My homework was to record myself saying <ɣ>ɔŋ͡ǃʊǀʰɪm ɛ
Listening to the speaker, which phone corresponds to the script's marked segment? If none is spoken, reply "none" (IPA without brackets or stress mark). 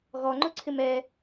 ɣ